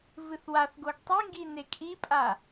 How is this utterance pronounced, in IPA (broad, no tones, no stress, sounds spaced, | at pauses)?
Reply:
v ɨ θ w a θ ɡ o ɡ tˤ i ŋ ɡ i n e kʼ i pʼ a